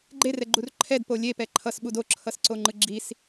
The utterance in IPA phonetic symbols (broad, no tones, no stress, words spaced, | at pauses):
ɡ͡ǃerɛɡ͡ǃur ǃʰɛdpo lʲepɛ ǃʰʌsɓud oǁʰʌsǀoŋ͡ǃɯ ɡ͡ǁis